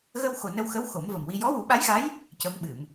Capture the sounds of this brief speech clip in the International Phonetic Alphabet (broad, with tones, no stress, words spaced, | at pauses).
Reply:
ɣə˧wxo˨˩ nə˧wxə˧˥w xo˨˩˦mvə˨˩mwi˧ jɔ˧˥wu˨˩˦ɓa˧˥jɣa˧˥j | cə˧˥mɓɨ˨˩˨m